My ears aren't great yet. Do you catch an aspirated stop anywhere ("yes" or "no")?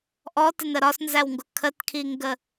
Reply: yes